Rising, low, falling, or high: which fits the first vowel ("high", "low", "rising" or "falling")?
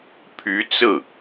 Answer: rising